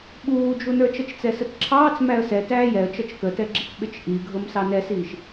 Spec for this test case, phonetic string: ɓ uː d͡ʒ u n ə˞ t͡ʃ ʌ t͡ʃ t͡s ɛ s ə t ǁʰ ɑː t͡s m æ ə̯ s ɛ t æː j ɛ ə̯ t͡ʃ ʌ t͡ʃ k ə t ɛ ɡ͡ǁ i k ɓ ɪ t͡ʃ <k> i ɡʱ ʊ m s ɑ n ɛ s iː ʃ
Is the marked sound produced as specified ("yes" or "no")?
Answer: no